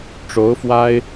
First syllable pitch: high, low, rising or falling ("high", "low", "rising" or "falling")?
rising